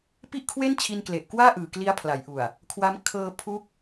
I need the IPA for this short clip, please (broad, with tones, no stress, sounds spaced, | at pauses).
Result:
p i˥˩ ʔ kʰ w e˥˩ n t͡ɕʰ i˧ n k l e˨˩ ʔ k w aː˥˩ ʔ ɯː˨˩ k l i˦˥ a̯ pʰ l a˩˦ j ʔ u˨˩ a̯ | kʰ w a˦˥ m kʰ ɤː˧ pʰ u˥˩ k̚